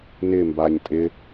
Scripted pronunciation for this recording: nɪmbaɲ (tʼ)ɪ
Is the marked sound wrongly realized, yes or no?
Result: no